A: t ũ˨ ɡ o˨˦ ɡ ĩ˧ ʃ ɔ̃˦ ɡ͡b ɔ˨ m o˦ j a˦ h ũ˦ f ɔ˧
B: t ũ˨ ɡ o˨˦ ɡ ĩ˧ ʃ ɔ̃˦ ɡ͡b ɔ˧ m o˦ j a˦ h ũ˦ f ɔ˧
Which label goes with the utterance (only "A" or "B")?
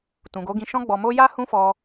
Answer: B